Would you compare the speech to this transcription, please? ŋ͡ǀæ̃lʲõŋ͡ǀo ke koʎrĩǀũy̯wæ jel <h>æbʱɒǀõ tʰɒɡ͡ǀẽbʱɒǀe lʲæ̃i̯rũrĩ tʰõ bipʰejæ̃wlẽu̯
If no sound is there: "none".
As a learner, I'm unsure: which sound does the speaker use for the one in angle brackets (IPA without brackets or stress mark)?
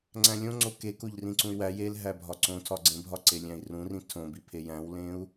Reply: ɦ